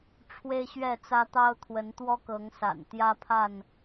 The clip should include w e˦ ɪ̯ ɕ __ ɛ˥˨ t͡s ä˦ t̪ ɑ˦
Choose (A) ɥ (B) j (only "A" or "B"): A